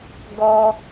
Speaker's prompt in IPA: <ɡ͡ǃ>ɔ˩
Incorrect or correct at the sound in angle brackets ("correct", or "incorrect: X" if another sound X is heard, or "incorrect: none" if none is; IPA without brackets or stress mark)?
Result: incorrect: ɡ